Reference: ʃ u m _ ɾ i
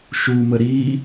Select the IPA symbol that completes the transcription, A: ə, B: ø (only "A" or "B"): A